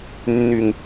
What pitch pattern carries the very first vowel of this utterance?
low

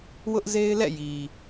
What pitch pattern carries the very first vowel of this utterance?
high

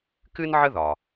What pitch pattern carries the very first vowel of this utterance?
high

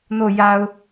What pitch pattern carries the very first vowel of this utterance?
falling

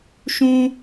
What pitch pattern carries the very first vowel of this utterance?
high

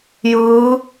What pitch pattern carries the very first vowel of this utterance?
rising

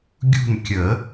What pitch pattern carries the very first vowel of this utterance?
falling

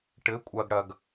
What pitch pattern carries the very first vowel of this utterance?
rising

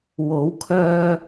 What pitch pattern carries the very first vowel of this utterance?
rising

